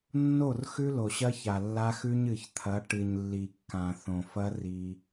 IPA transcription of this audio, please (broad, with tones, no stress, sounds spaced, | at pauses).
nː o˦˨ r x ʉ˦ l o˨ ɕ ɐ˦ ç a˨ lː a˦ x ʉ˦ ɲ ɨ˨ ç t̪ʰ ɐ˨˦ ʈ ɨ˨ ɲ lː i˨ kː ã˨ θ õ˨ f ɐ˦ r i˦